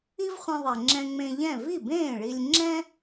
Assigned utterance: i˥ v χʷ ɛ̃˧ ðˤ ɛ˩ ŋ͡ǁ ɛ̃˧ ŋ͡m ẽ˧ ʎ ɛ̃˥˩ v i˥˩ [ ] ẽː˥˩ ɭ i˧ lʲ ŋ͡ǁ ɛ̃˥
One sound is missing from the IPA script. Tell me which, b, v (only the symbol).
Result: b